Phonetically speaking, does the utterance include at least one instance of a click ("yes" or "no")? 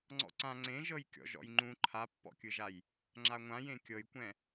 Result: yes